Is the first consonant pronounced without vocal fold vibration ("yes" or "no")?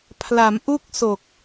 yes